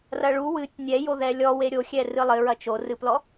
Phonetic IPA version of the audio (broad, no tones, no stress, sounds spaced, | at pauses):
r ɐ ɭ u w ɨ tʲ nʲ ɛ j o ð ɛ lʲ ɔ w e ɾʲ o xʲ ɛ r ɨ lˠ ɘ ɹ ɐ t͡ʃ o r ɨ p l ɔ